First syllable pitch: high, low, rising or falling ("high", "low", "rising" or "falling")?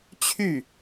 falling